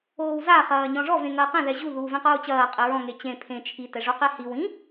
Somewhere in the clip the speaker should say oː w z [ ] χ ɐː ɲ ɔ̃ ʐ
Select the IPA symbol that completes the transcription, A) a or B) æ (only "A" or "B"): A